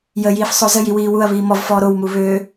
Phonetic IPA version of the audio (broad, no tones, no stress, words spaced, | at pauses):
jəjiːf sˤozəji wiːwuɐ̯βiː mɔvfɔː ɾowmu βø